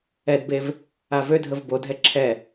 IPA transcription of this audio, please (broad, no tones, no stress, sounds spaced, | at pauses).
ɛ d b e v | a v ø dʱ ə v b o dʱ ɛ ǁʰ ɛ